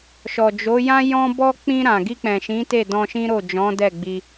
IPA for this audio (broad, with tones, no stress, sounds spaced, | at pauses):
ʃ ɔ˨ d͡ʒ o˨˦ j ã˦ j ɔ̃˦ b ɔ˦ k͡p ĩ˧ ɾ ã˨ ɡ i˧ k͡p ɛ̃˨ ʃ ĩ˨˦ t e˦˨ d ɔ̃˧ ʃ ĩ˦ ɾ o˦˨ d͡ʒ ɔ̃˨˦ d ɛ˦˨ ɡ͡b i˧